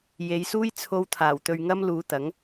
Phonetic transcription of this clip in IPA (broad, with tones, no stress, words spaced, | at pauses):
je˨˧jsuː˥j t͡sʰo˥w t̪ʰaː˨˩wt̪ɵ˧ɥŋɐ˥m luː˨˧t̪ɐ˨˥ŋ